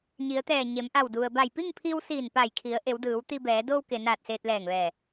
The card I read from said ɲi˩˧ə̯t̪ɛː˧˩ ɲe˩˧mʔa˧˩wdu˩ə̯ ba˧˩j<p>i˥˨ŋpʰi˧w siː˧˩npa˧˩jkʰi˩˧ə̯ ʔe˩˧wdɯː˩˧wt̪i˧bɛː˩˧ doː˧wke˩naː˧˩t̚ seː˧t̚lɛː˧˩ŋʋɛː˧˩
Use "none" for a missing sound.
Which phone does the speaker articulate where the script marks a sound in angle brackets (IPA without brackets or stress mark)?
p